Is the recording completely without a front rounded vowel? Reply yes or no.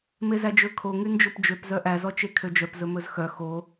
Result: no